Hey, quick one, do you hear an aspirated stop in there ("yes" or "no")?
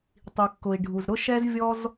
no